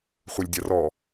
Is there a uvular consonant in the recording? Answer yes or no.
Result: yes